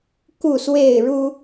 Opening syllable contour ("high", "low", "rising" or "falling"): falling